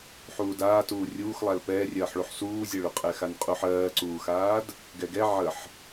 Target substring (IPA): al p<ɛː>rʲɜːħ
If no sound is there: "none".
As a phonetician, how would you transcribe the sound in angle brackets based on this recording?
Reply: ɛː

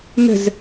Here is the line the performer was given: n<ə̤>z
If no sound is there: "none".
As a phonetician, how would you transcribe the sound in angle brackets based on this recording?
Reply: ə̤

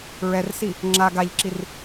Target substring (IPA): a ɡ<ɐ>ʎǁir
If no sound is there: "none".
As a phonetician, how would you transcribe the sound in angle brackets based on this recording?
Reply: a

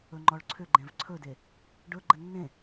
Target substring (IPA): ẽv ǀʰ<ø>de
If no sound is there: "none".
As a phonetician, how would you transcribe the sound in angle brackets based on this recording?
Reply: ɵ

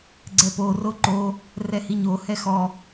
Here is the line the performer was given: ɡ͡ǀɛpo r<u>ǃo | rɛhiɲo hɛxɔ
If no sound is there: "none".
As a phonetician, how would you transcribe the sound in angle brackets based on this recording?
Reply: o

